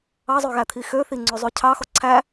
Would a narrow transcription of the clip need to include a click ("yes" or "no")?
yes